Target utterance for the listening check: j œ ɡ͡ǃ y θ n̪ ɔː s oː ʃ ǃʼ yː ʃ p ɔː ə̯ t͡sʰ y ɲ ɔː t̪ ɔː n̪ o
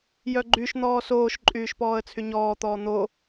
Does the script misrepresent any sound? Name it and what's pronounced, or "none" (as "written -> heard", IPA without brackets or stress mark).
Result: θ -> ʃ